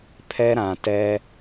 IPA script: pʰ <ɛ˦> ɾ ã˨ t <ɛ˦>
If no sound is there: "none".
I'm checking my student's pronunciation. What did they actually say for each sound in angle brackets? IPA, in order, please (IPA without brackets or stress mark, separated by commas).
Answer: ɛ˦, ɛ˦